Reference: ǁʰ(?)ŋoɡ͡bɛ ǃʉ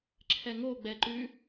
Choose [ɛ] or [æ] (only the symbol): ɛ